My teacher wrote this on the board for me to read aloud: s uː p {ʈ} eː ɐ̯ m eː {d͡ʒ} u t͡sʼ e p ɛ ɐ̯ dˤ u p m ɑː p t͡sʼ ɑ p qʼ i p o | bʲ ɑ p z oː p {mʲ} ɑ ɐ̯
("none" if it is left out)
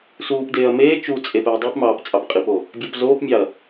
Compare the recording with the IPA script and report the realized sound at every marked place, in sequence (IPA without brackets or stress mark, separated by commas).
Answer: d, t͡ʃ, mʲ